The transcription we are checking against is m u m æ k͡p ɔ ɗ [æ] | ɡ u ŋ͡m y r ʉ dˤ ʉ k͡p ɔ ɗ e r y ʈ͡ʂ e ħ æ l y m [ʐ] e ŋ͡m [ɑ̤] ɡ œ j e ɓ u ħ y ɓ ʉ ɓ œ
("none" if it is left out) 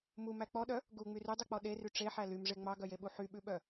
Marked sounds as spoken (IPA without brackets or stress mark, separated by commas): œ, ʐ, ɑ